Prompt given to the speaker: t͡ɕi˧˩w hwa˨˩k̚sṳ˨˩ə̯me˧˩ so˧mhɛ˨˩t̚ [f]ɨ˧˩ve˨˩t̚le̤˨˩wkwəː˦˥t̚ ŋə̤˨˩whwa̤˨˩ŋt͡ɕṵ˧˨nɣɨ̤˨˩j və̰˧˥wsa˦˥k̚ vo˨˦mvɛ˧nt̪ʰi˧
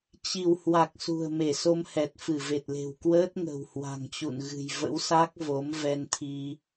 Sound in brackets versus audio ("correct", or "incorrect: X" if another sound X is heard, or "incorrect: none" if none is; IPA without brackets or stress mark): correct